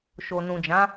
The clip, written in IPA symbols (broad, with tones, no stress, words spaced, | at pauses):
ʃo˨nũ˨d͡ʒã˨˦